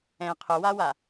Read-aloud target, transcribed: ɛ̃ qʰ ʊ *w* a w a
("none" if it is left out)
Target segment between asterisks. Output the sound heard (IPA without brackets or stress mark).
w